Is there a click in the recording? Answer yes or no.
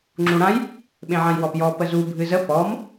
yes